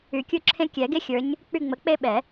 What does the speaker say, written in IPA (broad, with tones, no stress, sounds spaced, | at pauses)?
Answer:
y˨˩˦ kʲ u˦ ǁʰ ẽ˦ kʲ ɛ˨˩˦ ɡ e˦ xʲ ə˞˨˦ ɲ | k͡p y˦˨ ŋ͡m ə˨˦ k͡p e˦ ɓ ɛ˨˩˦